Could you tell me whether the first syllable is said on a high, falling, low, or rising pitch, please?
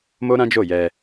high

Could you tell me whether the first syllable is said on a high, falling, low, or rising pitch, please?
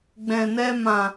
low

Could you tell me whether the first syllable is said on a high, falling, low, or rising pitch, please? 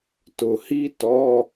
low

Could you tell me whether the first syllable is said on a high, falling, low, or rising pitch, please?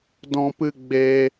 high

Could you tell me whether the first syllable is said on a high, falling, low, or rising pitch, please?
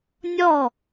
falling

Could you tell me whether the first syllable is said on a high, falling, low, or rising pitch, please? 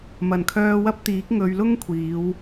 low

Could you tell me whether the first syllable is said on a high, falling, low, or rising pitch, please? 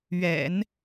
low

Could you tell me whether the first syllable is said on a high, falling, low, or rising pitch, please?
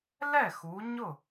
falling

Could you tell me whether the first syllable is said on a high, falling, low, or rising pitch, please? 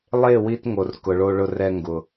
falling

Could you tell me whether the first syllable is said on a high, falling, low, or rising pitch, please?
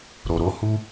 low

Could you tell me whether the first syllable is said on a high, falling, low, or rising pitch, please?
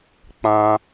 high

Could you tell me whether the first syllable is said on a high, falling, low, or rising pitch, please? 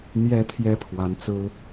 rising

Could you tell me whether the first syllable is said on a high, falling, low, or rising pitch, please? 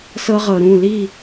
high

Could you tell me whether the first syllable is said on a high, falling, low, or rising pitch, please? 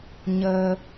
low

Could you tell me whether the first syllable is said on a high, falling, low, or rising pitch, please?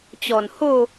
low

